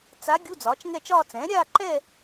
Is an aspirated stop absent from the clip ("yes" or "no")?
yes